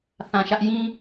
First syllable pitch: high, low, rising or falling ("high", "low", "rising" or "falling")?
low